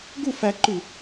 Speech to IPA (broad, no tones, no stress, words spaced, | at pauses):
ɡu fæǃʉ